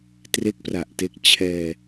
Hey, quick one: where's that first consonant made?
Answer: tongue tip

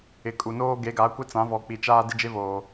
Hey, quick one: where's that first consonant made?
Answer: velum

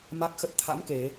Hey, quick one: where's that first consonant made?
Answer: lips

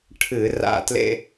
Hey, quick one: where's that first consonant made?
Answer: retroflex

